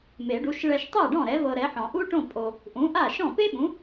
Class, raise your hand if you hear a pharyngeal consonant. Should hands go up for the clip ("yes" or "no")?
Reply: yes